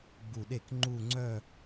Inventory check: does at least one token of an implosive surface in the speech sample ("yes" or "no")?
yes